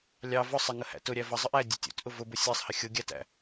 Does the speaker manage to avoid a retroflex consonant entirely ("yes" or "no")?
yes